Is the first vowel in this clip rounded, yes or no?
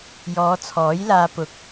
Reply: yes